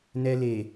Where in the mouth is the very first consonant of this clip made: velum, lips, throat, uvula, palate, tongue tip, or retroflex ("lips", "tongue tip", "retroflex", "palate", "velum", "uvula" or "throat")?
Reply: tongue tip